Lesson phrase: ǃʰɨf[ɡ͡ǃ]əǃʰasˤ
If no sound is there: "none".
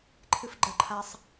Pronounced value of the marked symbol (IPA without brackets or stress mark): ɡ͡ǃ